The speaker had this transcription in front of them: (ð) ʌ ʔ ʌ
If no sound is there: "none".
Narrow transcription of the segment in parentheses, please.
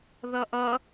ð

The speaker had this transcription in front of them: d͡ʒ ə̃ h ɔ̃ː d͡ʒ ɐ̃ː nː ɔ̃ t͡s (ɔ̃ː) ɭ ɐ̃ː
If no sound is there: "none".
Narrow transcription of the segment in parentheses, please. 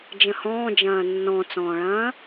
ɔ̃ː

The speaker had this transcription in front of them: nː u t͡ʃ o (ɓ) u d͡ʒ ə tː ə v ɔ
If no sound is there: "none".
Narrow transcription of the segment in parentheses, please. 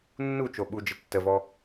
ɓ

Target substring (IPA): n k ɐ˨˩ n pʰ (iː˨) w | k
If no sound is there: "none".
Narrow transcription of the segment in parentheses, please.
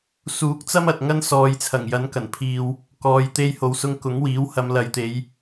iː˨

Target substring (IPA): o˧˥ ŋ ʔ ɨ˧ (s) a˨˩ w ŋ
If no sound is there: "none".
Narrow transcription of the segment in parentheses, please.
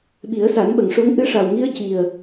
ʂ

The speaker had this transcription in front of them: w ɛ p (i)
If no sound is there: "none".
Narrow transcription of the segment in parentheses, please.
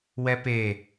e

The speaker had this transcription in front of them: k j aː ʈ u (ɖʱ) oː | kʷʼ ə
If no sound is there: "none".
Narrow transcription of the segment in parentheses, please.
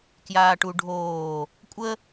ɖʱ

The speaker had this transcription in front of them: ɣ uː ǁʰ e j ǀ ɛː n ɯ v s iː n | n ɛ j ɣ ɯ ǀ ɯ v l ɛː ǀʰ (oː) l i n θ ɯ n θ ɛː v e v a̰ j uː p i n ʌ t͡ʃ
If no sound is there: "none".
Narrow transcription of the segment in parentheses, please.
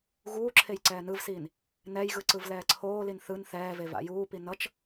oː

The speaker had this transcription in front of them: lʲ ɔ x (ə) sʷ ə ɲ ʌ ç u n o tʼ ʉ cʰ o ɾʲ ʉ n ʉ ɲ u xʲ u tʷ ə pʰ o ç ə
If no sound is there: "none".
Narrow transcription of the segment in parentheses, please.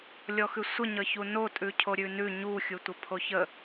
ʉ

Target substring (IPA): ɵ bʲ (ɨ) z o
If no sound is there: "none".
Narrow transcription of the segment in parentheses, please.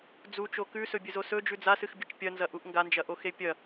ɨ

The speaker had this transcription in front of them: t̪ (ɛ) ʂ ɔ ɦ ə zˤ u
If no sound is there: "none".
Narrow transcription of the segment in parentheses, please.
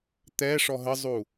ɛ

